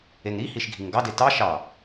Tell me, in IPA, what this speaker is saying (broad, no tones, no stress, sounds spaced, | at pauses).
e ŋ ɾ i h i ʃ ɡʱ i ŋ ɡ ɑ d e t ɑ ʃ ɑ